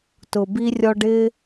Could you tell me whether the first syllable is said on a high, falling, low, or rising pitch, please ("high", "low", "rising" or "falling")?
low